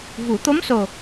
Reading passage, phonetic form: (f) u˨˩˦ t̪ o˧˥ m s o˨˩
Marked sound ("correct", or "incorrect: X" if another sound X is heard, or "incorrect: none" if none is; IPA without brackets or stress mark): incorrect: v